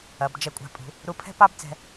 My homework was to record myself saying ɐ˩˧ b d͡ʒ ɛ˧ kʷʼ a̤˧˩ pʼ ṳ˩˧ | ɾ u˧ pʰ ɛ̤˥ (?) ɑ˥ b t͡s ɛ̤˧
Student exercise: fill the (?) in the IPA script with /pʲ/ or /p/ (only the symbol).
p